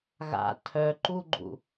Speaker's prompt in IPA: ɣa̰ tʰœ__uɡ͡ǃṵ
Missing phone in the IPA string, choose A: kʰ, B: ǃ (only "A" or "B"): B